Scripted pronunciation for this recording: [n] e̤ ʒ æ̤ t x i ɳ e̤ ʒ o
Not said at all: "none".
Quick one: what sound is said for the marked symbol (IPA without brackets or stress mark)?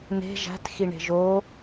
n